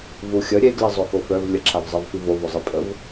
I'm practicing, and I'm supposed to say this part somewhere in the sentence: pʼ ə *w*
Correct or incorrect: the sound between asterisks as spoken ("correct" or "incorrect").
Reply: incorrect